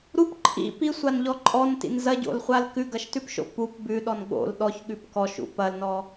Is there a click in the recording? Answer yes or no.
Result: yes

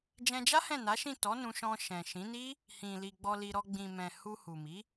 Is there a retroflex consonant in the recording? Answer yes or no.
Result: no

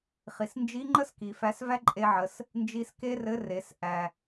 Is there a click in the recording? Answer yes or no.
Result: yes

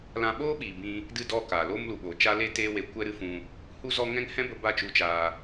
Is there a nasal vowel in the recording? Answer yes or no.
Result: yes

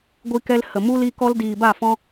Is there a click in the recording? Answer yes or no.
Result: no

